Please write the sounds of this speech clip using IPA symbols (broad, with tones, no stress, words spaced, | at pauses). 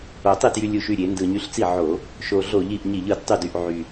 o˨˩tˤi˥˩tjy˧ lʲu˨˩ʃy˥˩ɾʲe˧˩˧ ndɯ˨˩ɲy˧ɬt͡si˥˩ ʕo˧˩˧ | ʃo˨˩ɮo˧˩˧ʎi˨˩ʔ ɲi˧˩˧ʎɯ˨˩d tˤy˥˩dy˥˩ʔ ʕy˨˩